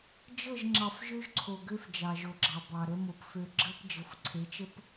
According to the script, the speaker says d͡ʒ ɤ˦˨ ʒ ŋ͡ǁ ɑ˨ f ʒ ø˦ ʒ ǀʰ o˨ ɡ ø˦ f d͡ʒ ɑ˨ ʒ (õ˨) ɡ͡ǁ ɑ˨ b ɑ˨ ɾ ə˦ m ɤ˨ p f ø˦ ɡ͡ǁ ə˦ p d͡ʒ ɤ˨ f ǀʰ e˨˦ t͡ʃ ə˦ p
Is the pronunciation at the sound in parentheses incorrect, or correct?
incorrect